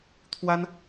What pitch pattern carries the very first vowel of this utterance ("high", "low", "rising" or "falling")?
high